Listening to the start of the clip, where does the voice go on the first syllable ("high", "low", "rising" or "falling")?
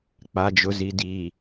low